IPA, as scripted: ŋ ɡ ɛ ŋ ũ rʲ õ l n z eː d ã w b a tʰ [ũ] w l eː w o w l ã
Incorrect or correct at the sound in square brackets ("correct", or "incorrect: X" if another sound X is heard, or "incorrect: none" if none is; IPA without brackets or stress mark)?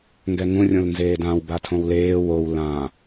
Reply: incorrect: õ